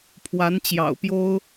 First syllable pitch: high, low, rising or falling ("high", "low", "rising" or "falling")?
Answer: rising